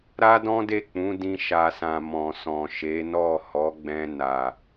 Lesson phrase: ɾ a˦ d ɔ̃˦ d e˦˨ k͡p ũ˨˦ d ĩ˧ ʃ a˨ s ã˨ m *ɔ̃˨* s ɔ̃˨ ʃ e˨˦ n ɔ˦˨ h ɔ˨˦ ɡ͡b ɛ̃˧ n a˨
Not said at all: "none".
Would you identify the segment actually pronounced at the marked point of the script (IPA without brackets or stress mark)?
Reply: ɔ̃˨